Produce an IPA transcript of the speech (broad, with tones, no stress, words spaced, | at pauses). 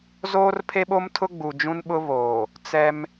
zoː˦rpʰe˦ɓo˦mtʰʊ˦ ɡ͡bu˨d͡ʒũ˦nɓʊ˦βoː˨ | t͡sɛ˦m